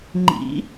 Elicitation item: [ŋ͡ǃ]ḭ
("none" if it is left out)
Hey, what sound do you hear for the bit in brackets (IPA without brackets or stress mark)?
ŋ͡ǃ